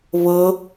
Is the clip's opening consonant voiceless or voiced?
voiced